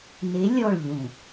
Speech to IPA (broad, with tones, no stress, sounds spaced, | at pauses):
n e˨˦ lʲ ɔ˦˨ ɭ ʎ ũ˨